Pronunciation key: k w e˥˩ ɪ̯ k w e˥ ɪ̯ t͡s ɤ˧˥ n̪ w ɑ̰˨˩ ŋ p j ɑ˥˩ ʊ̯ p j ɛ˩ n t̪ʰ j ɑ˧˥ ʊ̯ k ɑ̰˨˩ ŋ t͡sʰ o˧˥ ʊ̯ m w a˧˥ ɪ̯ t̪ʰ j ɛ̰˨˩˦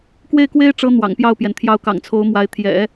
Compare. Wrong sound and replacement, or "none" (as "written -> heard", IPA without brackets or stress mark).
t͡s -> ʈ͡ʂ